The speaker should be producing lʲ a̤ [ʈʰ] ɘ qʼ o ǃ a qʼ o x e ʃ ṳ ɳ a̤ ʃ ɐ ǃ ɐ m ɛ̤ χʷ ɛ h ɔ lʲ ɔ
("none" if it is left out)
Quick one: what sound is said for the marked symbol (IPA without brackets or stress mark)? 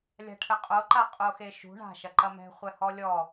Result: ʈʰ